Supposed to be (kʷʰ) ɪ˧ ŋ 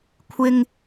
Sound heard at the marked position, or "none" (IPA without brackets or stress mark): kʷʰ